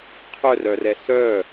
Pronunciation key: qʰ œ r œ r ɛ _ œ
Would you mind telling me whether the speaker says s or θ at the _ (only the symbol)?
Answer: s